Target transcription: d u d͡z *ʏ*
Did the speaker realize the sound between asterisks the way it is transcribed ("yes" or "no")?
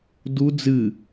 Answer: no